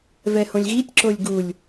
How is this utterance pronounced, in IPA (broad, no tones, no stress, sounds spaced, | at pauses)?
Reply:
v ɛ h õ lʲ ɣ i tʲ ǁ o lʲ ɡ u lʲ